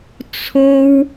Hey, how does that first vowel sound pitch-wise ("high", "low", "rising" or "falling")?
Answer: high